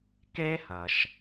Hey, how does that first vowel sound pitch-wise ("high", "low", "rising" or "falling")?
high